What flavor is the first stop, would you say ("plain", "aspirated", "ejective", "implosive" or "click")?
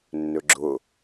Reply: click